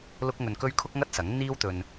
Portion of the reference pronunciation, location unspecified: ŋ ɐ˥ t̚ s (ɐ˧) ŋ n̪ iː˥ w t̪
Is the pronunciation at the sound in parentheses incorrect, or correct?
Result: incorrect